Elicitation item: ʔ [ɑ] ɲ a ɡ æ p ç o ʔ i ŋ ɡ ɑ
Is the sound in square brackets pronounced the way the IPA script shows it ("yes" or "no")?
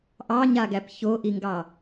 yes